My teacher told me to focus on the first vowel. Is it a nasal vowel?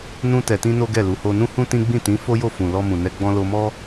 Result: yes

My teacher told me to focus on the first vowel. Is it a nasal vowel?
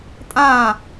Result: yes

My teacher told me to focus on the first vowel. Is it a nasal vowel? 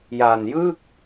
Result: no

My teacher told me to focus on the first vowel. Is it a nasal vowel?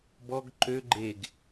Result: no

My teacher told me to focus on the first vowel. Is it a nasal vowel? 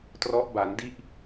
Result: no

